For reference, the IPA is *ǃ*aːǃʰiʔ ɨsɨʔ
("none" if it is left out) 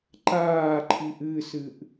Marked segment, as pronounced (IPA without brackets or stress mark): ǃ